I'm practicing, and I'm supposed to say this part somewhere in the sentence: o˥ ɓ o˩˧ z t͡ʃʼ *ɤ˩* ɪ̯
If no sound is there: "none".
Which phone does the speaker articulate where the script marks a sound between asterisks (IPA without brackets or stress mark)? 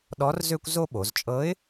ɤ˧˥